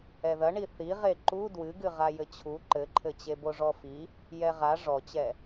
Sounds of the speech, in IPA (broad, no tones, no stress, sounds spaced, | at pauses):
ɛ ð ɐ ɳ i θ i ʁ e ǃ u d w ɨ ɡ ɨ ʁ a j ɘ t͡ɕʰ u ǃ ɘ ǃʰ ɘ t͡ɕ e b o ʐ ɔ f i | j ɛ ʁ a ʐ ɔ t͡ɕ ɛ